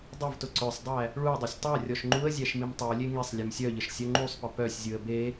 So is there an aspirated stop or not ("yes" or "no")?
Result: no